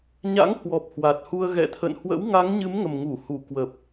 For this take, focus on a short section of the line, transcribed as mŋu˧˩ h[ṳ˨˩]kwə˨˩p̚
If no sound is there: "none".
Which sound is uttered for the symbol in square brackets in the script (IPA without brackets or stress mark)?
u˧˩